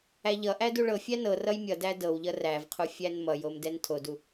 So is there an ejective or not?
no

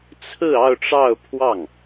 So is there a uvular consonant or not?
no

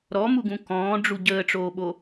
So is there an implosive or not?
yes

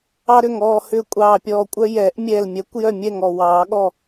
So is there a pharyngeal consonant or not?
no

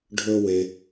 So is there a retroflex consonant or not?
yes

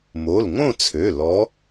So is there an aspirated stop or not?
yes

